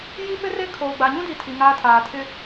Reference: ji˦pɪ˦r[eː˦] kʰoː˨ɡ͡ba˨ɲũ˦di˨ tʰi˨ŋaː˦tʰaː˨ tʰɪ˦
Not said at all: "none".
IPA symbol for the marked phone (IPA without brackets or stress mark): e˦